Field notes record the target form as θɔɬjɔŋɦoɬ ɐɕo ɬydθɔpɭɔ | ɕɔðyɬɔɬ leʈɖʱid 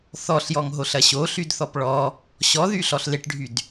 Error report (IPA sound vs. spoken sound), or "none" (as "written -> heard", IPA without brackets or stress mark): i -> y